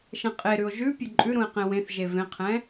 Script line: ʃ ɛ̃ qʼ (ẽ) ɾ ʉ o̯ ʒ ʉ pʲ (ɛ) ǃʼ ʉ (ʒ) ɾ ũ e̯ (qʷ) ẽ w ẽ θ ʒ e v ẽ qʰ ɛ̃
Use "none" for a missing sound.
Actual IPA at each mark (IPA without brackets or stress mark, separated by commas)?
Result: e, ø, none, q